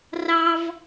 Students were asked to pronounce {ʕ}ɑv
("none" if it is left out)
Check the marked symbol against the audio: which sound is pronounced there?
r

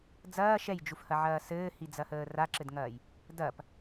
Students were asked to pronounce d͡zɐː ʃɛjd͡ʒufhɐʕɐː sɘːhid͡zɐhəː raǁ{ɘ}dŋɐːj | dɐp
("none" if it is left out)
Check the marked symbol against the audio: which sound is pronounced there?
ɘ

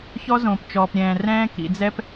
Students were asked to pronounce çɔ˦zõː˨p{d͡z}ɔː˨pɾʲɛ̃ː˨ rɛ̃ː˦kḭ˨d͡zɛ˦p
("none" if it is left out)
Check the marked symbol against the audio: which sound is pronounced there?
t͡ʃ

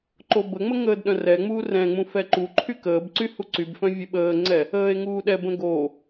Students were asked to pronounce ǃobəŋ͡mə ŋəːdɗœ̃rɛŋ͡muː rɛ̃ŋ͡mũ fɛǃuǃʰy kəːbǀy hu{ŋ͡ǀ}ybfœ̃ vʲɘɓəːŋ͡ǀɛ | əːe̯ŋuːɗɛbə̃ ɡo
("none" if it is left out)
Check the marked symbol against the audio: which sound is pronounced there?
ǀ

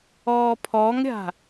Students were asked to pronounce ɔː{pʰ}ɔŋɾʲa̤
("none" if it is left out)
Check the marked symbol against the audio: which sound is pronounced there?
pʰ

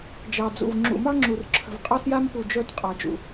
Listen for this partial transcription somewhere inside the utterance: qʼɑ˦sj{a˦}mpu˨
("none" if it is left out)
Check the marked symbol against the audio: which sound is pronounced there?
a˦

